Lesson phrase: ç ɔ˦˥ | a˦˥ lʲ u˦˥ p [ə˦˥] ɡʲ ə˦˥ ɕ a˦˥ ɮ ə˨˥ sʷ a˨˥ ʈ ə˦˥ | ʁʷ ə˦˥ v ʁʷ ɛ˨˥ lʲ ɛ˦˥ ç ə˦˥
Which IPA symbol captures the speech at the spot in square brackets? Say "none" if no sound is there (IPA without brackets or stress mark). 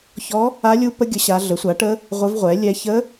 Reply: ə˦˥